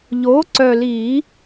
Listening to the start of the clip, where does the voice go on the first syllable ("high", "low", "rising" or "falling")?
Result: rising